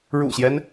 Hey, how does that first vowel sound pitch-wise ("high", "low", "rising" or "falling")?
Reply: low